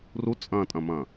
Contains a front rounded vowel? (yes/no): no